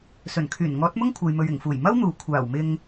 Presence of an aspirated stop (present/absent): present